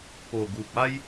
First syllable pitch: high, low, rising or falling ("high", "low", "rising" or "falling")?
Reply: low